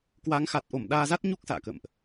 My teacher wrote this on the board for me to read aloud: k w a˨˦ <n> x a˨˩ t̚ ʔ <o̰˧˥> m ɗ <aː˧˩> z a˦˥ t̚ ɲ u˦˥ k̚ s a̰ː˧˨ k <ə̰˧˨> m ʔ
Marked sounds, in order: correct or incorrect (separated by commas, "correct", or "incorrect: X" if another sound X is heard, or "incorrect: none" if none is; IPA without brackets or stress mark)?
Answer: incorrect: ŋ, incorrect: o˧˩, incorrect: aː˧, correct